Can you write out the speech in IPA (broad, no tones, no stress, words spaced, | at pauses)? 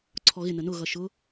ǀʰɔɣɪ nənʊ ɣʌʃʊ